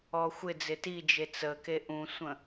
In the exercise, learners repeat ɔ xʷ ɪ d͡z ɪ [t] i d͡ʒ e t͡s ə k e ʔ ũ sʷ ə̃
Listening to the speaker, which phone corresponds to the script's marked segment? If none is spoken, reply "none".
t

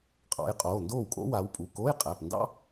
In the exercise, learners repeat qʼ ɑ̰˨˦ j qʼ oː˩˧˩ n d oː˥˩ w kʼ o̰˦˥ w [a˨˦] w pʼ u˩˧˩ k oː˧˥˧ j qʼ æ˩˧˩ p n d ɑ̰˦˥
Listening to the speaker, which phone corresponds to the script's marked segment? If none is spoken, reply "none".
a˨˦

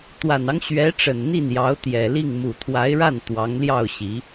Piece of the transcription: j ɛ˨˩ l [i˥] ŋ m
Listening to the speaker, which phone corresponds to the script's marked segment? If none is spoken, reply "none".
i˥˩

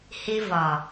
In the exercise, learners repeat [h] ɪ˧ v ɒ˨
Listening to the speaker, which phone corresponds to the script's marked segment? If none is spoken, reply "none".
h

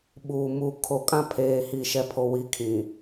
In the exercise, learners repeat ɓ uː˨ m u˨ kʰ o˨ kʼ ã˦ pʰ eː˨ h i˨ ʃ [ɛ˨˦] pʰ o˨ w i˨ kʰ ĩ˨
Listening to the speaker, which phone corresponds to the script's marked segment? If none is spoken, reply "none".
ɛ˨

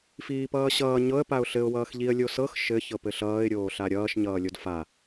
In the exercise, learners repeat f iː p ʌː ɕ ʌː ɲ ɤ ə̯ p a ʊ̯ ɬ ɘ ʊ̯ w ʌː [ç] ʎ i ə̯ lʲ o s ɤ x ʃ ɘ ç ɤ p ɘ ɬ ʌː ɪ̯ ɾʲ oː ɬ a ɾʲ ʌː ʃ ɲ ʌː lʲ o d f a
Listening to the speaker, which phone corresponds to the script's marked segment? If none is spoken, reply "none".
x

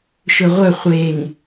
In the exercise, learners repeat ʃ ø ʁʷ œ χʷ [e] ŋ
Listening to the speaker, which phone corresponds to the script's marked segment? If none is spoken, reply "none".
e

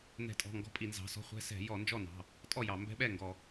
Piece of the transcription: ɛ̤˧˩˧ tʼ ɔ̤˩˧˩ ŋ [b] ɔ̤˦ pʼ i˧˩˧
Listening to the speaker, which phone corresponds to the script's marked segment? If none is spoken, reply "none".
ɡ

